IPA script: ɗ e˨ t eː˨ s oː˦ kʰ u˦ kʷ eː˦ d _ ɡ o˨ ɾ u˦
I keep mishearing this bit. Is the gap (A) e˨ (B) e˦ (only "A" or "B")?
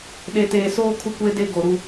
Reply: B